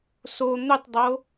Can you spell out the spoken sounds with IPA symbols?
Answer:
s o n̪ ʏ tˤ dˤ o

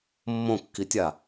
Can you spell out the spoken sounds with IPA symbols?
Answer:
mː õ kː i tʲ a

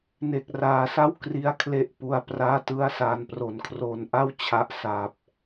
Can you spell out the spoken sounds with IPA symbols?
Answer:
n e˨˩ k̚ r aː˩˦ s a˥˩ w k r i˦˥ a̯ kʰ l e˦˥ ʔ p u˧ a̯ p r aː˥˩ t ɯ˥˩ a̯ s aː˨˩ n p r o˩˦ n kʰ r oː˨˩ n ʔ a˥˩ w t͡ɕʰ a˦˥ ʔ s aː˨˩ p̚

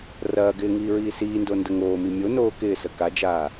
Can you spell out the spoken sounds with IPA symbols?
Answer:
r ɐː ɡ ɪː ŋ iː ɹ iː s iː n d o n d ə ŋ oː m i mʲ o n oː k ɪː s ə k a d͡ʒ aː

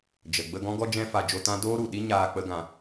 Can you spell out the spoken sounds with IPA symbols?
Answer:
d͡ʒ ə˨ ɡ͡b ə˧ ɡ ɔ̃˦ ɡ ɔ˦ d͡ʒ ɛ̃˦ f a˧ d͡ʒ o˧ t ã˦ d oː˦ ɾ u˨ ɗ i˦ ɲ aː˧ k͡p ə˦ ɡ ã˧

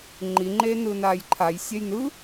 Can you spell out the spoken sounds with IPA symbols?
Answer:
ŋ͡ǃ i ŋ͡ǃ eː n ɯ n aː j ǃʰ a j sʲ ɛ j n ɯ

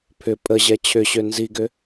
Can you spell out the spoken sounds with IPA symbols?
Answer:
pʰ ʏ pʼ ə ʑ ɛ t͡ɕʰ ʏ ɕ ø n z i ɡ ʏ

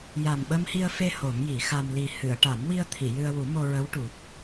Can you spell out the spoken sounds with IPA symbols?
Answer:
j a˨˩ m ɓ ə˧ m h i˧ ə̯ f e˧ h o˨˩˦ m j i˨˩˦ x a˧ m l i˨˩ h ɨ˨˩˨ ə̯ ʈ a˨˩˦ m w i˧ ə̯ t̪ʰ i˨˩˨ j ɨ˧ ə̯ w u˨˩˦ m o˧ ɹ ə˧˥ w ʈ u˨˩ t̚

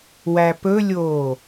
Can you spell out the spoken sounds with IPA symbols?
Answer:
w æ p ɵ lʲ oː

